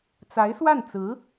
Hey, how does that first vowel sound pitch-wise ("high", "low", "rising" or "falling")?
rising